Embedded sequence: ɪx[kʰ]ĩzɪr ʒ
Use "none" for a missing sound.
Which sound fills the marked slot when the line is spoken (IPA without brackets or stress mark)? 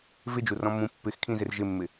kʰ